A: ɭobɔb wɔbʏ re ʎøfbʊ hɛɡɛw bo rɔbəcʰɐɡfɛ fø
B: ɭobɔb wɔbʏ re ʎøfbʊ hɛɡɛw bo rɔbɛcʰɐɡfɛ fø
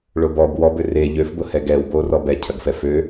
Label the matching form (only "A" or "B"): B